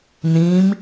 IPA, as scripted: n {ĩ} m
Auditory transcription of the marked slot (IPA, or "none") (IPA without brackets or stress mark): ĩ